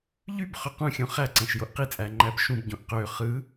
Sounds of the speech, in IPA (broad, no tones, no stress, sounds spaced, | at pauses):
ʎ y b χ ø q ũ xʲ õ χ æ ǀ æ̃ ʃ j o ʔ q i t͡sʼ æ ŋ͡ǃ æ b ʃ ũ b ɟ õ ʔ q ø χ ɯ